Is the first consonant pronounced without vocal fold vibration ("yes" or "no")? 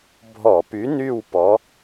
no